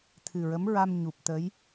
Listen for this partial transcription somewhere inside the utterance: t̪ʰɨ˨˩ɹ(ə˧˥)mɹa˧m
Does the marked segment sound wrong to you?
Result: no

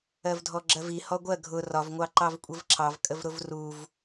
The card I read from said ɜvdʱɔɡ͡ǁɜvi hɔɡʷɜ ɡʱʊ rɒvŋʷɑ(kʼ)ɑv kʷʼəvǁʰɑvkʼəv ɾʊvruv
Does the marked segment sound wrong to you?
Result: yes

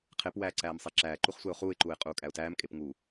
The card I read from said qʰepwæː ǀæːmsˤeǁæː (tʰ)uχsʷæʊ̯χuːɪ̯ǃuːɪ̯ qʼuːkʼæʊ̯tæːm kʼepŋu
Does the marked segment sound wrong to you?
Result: yes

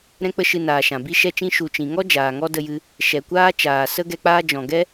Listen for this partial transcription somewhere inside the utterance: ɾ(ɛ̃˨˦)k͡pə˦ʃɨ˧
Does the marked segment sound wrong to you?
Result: yes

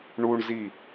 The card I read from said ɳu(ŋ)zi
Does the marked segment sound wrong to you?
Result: yes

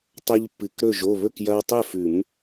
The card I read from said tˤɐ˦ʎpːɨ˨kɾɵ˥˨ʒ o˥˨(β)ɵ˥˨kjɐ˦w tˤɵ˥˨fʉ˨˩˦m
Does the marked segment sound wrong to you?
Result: no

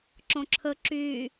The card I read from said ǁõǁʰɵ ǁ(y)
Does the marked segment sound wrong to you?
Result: no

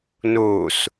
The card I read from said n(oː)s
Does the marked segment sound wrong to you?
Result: no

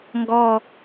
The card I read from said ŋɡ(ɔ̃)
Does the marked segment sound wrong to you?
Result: yes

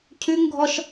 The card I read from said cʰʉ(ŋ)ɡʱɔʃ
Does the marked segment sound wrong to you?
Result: no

